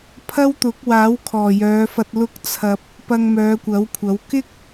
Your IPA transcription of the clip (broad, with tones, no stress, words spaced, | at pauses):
pʰɐ˥wt̪ʊ˨˥k̚ waː˨˥wkʰɔː˨˩jœː˨˧fɐ˧t̚ lʊ˥k̚t͡sʰɐ˧p̚ | pɐ˧ŋmœː˨˧kʷɐ˨˥wkʷʰɐ˨˥w kɪ˥k̚